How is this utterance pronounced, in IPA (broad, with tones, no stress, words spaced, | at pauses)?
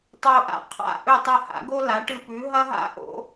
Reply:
tˤo˧ʔa̰˧ qʰa̰˥˩ ʔɵ˥˩tˤɐ˥˩ha̰˩˥ɡo˥ la˩˥ʈɨ˧pʉ˩˥ ɦɐ˥ɦa̰˥ ʔo̰˩˥